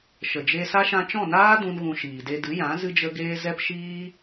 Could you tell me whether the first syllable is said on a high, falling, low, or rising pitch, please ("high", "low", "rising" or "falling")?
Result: low